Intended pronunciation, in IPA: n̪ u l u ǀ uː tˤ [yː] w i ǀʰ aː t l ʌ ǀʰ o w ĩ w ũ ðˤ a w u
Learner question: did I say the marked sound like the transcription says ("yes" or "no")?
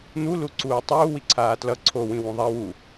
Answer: no